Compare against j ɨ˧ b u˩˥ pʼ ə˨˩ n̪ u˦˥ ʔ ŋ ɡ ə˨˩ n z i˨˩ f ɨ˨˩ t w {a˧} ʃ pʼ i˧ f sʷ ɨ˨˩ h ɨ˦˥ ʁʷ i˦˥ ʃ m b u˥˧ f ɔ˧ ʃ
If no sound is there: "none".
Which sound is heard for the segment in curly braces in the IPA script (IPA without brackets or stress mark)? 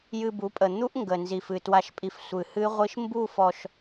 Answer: a˧